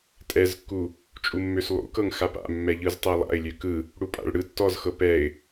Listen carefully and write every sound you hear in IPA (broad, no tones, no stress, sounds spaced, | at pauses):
tʼ ɛ z kː u | t͡ʃʼ u mː ø s lˠ ṵ k ɤ ŋ x a p a̰ mː ɛ ʎ ɯ z tˤ ɛ lˠ a̰ ɪ̯ lʲ ø k ɯ | ɽ u pʼ a̰ ɭ ɽ ɯ tː ɔ z x ɤ p ɛ ɪ̯